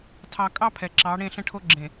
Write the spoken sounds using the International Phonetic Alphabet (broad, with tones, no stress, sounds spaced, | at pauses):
tʰ ɑ˨ kʼ ɑ˦ pʰ ɛ˨ ǁ ɑ˨˦ ɽ ẽ˦˨ ɬ ə̃˦ ʈʰ o˦ ɡ͡ǁ ẽ˨